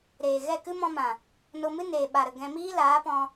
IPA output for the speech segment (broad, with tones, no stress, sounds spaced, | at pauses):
ɾ eː˨ ɣ ɛ˦˨ k ɨ˦ m ɔ̃˧ m ã˨ | n o˧ m ɨ˦ n eː˨ ɓ a˨ ɾ ə˨ ɡ ɛ̃˧ m iː˦ l aː˨˦ p ɔ̃˧